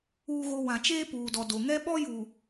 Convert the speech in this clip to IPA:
uː˦ ɣ o˦ w ã˨ t͡ʃ eː˦ p uː˨ d ɔ˨ d o˨ ŋ ɛ˦ ɓ ɔ˦ j uː˨

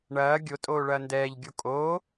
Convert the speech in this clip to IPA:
ɳ ɐː ɡʲ o tʼ oː ɭ ɐː n d ɛː ʎ ɡʲ o kʼ oː

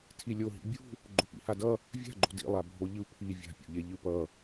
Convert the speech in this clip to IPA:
tʰ i lʲ o ɦ ḭ bʲ ṳ | ɡ͡ǃ o p ḭ h a d ʌ | vʲ a̤ ɡ͡ǃ o̤ d ḭ lˠ a bʱ o ʎ ɯ pʰ i vʲ a̤ pʲ o̰ ʎ e ʎ ɯ p ʌ

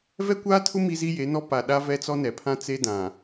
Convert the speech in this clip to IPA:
v ɛ˦ kʷ aː˦ tʰ ʊ˦ m i˦ z i˦ j e˨˦ n ɔ˦ p a˨ ɗ a˦ v ɛ˦ t͡s ɔ˦ n ɛ˨ pʰ ã˦ t͡s e˦ d ã˨

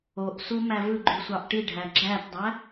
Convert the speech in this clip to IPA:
o ʔ s u m æ v ɯ ɡ͡ǃ y sʷ ɑ ʔ ʈ i ɖʱ æ ɡ͡ǁ æ t dˤ æ

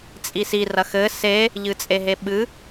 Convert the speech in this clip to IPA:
t͡sʼ i s i r ɐ x ɘ s e | ʎ ɨ t͡sʼ e ɦ e ɓ ɨ

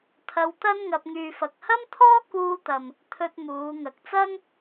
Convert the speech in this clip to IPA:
t̪ʰ ɐ˧ w t̪ ɐ˥ n ŋ ɐ˧ p̚ ŋ yː˨ f ɐ˨ k̚ h ɐ˥ m t̪ʰ ɔː˥ k uː˧ t̪ ɐ˨ m | t̪ʰ ɵ˧ t̚ m uː˨˧ ŋ ɐ˨ k̚ t͡s ɐ˥ ŋ

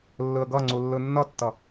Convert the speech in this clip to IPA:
lː ɯ ə̯ ɡ ʌ ŋ͡ǀ u lː ɯ nː ʌ tː ʌ

